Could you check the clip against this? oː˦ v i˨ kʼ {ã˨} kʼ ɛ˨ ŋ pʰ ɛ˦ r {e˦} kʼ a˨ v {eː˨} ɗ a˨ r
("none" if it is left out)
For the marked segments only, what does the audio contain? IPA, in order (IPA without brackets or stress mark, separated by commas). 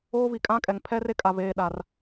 ã˦, e˦, eː˨